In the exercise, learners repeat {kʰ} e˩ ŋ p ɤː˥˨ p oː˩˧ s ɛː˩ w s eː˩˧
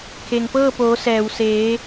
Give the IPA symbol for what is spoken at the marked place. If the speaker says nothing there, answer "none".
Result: kʰ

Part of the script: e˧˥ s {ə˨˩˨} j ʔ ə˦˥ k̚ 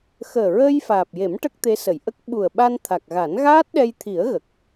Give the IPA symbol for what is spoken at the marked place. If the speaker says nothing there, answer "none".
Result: ə˨˩˨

